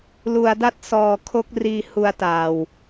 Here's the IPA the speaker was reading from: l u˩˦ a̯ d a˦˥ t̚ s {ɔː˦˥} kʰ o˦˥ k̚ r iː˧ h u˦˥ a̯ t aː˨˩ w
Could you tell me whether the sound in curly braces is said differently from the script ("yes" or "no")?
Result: yes